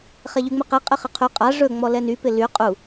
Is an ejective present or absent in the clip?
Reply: present